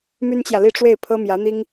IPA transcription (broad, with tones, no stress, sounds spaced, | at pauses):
m y˥ n t͡ɕ j ä˨ l i˥˧ ʈ͡ʂ w e˥˩ ɪ̯ pʰ ɤ˥ m j ä˧˥ n̪ i˥ ŋ